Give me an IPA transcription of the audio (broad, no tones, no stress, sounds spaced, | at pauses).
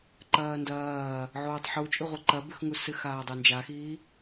ǃ ɐː n d ɐː | ʕ oː tˤ ħ u t͡ʃʼ ʉ ʁʷ i ǃ ɐ b ʉ x ŋ u s ɨ x aː dˤ e n d͡ʒ a x iː